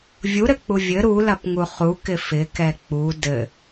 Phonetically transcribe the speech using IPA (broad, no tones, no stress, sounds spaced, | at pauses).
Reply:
vʲ u ɾ ɘ k͡p u vʲ ɘ ɾ u l ɐ p ŋ u χ u k ɪ f ɪ k ɛ k͡p u d ɘ